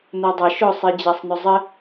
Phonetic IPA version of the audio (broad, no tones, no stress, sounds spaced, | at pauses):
n o dˤ ʌ ʃ ʊ sˤ i d͡ʑ a sˤ n ʊ zˤ ɘ